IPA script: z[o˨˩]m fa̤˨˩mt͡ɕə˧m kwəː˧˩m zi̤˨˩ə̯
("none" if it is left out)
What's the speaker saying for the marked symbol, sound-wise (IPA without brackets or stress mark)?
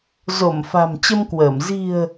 o˧˩